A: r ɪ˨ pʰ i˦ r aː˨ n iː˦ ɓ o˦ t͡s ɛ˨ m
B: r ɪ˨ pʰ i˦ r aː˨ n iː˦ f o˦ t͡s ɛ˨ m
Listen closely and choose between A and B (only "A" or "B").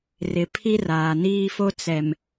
B